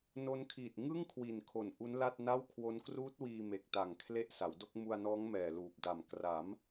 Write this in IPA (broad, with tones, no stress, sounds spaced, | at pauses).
n o˦˥ n kʰ iː˨˩ t̚ ŋ ɯ˥˩ ŋ kʰ w i˨˩ n kʰ o˨˩ n ʔ u˦˥ n l a˥˩ t̚ n a˥˩ w kʰ w o˦˥ n k r uː˦˥ t̚ w iː˧ m e˨˩ k̚ t a˨˩ ŋ kʰ l e˦˥ ʔ s a˩˦ w d o˥˩ k̚ m u˧ a̯ n ɔː˦˥ ŋ m ɛː˨˩ l uː˨˩ p̚ d a˨˩ m k r a˩˦ m